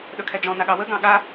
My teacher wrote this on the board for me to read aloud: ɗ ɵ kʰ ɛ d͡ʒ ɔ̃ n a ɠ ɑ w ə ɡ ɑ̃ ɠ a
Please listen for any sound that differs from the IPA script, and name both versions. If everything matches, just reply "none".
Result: none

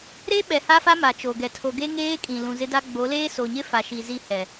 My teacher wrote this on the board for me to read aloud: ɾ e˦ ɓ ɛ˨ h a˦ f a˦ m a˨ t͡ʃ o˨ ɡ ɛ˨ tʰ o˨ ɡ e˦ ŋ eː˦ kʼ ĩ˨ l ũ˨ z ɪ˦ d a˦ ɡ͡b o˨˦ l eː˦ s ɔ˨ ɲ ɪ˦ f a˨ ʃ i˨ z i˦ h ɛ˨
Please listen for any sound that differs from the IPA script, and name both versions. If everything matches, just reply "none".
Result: ɔ˨ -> o˨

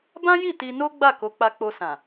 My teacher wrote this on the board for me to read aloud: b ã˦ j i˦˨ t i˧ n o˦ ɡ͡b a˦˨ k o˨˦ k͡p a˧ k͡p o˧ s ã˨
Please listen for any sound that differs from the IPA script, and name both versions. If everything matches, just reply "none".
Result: none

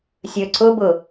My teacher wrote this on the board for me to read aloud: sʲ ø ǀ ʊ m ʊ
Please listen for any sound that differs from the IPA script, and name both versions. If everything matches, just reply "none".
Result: m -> b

